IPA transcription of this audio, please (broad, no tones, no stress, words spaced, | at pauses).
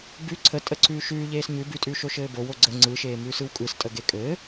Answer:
bʉ ǀʰətʼəǀʰʉː ʃʉː ʎeːsɲʉ bʉtʼʉːʃo ʃɘːbow oɡ͡ǀə ŋ͡ǀɯʃeː mʉːsɯwkʼɯstʼə ɡekʼɘː